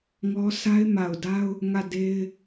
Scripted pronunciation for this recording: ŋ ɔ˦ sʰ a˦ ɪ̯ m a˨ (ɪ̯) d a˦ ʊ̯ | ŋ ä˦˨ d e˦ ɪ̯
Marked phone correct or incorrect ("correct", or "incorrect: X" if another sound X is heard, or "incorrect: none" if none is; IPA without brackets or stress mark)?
incorrect: ʊ̯